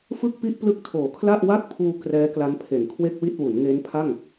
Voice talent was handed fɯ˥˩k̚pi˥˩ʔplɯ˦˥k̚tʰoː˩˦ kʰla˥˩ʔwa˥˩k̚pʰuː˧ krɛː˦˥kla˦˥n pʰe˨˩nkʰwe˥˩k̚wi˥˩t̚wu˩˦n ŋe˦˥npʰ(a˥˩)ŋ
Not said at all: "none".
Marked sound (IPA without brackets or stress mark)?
a˥˩